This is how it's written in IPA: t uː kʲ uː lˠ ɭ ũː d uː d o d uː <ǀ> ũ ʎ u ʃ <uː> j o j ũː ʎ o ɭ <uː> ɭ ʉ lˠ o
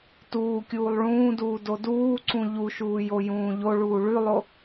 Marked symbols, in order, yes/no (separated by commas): yes, yes, yes